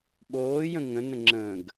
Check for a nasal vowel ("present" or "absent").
present